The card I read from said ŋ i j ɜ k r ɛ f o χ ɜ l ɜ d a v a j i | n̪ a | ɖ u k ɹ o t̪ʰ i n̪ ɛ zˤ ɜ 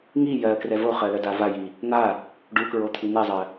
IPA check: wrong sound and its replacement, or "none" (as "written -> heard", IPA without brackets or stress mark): f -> v